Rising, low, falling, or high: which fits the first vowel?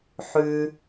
low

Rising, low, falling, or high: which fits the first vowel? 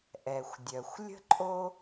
low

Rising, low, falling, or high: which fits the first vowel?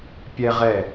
high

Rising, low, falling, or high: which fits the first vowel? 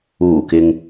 low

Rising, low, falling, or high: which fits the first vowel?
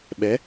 rising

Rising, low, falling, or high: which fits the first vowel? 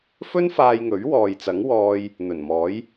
high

